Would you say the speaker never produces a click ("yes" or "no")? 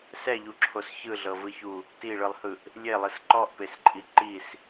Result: no